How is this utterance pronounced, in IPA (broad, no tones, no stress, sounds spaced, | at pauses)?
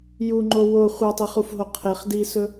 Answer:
j u ŋ͡ǃ o w o χʷ a tˤ i χ u f ɦ o qʰ e χ d i s ɵ